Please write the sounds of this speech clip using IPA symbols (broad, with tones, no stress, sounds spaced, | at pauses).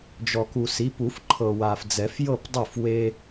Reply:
d͡ʒ ɔ˨ k u˨ s i˨˦ p u˨˩˦ f ǃʰ ɤ˨ w a˨ f d͡z ɛ˨˩˦ f j ɤ˥˨ p dˤ ɯ˥˨ f w e˦